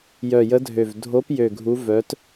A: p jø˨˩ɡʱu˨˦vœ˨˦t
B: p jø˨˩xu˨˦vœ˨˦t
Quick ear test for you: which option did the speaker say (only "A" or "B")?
A